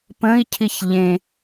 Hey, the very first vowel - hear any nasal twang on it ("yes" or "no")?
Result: yes